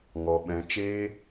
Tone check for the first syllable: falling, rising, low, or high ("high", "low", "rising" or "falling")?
low